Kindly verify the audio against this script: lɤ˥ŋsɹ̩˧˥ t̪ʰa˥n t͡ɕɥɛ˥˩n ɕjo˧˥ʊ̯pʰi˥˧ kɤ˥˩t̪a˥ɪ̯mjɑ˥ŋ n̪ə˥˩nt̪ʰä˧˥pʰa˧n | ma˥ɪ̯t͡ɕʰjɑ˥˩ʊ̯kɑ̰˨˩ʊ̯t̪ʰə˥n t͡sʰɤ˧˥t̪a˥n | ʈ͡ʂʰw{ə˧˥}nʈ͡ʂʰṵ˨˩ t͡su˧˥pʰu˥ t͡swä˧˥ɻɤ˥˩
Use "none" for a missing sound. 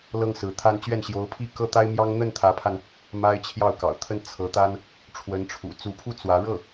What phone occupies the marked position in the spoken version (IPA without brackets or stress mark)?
ə˧˥